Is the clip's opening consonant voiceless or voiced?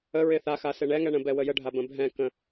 voiced